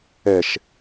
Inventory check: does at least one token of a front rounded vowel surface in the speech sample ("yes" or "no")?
no